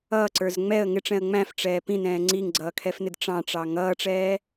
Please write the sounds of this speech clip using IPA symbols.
ʌː ǀ ə˞ z ŋ͡m ɛ ə̯ ŋ ɪ ʈ͡ʂ ɛ̃ ə̯ ŋ͡m æ̃ f ʈ͡ʂ ɛː p ĩ n ɛ̃ː ŋ͡ǀ i ŋ ɡ͡ǀ ʌː kʰ ɛ f n ɪ d ʈ͡ʂ ɑ̃ ʈ͡ʂ ɑ ŋ ʌː ʈ͡ʂ ɛː

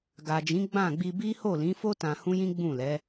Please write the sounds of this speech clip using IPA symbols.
ɡ a˨ d͡ʒ ĩ˨˦ ɡ͡b ã˦˨ ɡ͡b i˧ b i˦ h o˦˨ l ĩ˨˦ f o˦ t ã˧ h ũ˦ j ĩ˦ ɡ͡b ũ˦˨ l ɛ˨˦

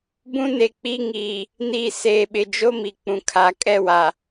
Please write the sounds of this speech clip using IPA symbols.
b ũ˦ n e˨ k͡p i˦ ŋ iː˨ | n iː˨ s eː˨ ɓ ɪ˨ d͡ʒ o˦ m i˨ k͡p ũ˨ kʰ a˨˦ kʼ ɛ˦˨ w a˨

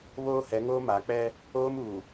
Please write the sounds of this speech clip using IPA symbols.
β oː˦ h ɛ˨˦ ŋ oː˦ m a˨˦ k͡p ɛ˦ | oː˦ m uː˨

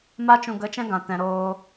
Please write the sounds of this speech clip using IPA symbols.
m a˧ t͡ʃ ũ˨ ɡ ə˨˦ t͡ʃ ɛ̃˧ ɡ ã˧ t ɛ̃˧ ɾ oː˧

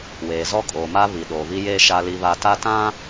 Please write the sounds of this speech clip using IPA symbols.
w eː˨ z ɔ˦ kʼ oː˨ m a˦ β i˨ ɗ oː˨ β i˦ j eː˦ ʃ a˦ l i˦ β a˦ t a˦ t ã˦

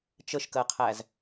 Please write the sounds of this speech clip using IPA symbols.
t͡ʃ ə ʃ k ɜ qʰ æ z

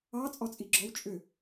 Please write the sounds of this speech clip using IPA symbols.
ɑ t͡sʼ ɔ t͡sʼ i ɡ͡ǁ ɔ w t͡ʃʼ ʏ

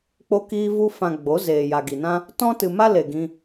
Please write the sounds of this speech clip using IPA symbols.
k͡p o˧ k iː˧ v u˧ f ã˨ ɡ͡b o˨˦ z eː˨ j a˨ ɡ i˨ n ã˦ | t ɔ̃˧ t ɨ˨ m a˧ l e˨ ɡ ĩ˧

